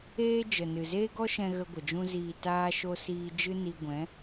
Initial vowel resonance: oral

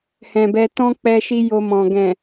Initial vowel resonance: nasal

